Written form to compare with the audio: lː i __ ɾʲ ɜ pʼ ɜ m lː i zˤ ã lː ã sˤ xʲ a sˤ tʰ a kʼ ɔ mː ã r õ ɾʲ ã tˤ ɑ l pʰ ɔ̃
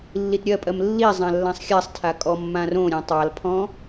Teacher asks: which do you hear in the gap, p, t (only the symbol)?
t